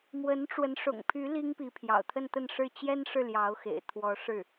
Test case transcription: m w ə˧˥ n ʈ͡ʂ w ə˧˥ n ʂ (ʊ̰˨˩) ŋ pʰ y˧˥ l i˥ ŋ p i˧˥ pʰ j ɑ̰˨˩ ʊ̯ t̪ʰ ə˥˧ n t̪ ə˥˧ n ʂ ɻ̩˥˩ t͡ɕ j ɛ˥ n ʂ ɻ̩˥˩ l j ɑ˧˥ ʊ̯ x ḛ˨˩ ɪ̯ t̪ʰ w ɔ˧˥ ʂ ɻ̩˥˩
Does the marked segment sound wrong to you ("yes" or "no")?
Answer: no